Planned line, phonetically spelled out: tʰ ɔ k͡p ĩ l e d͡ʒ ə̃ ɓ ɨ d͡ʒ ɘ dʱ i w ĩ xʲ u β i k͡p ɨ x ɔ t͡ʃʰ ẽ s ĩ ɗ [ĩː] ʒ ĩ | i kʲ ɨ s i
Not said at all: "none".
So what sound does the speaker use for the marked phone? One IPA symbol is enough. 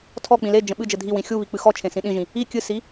ĩ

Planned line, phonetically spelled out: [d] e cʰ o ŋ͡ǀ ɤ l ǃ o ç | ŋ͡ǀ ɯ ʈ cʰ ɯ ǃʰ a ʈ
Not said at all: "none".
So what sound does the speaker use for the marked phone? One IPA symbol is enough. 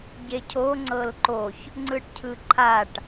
ɟ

